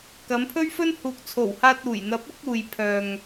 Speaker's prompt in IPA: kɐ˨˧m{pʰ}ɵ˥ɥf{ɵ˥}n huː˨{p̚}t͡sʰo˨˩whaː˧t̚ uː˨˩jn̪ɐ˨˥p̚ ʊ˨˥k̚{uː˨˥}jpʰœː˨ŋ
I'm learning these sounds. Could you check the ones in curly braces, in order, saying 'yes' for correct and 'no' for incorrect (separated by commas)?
yes, yes, no, no